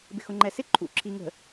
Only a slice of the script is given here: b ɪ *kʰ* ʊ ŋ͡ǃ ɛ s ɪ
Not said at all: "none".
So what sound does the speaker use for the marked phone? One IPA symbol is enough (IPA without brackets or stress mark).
x